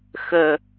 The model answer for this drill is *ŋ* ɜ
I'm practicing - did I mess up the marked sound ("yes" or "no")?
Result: yes